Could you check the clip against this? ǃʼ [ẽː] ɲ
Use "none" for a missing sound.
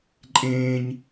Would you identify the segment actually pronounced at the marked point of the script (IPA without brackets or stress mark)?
ẽː